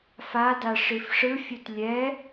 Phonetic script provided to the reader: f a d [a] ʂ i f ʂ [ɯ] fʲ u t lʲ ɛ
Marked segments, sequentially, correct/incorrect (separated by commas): correct, correct